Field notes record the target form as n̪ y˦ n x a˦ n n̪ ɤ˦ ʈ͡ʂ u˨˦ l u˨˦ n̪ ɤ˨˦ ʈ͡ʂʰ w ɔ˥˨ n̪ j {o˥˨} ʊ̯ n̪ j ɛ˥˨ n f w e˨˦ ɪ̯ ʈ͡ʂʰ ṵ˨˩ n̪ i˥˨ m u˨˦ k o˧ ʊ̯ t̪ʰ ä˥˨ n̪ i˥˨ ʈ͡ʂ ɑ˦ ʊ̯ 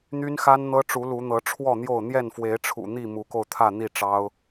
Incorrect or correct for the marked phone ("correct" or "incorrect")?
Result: correct